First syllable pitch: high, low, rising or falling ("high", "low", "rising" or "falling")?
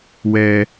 high